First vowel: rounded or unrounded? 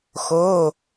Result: rounded